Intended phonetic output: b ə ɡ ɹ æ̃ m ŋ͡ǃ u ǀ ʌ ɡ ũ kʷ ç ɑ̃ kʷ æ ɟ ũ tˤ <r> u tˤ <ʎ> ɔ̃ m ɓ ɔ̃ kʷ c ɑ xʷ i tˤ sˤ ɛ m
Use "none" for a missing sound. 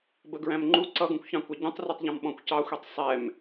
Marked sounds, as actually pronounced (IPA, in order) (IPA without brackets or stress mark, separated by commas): r, ʎ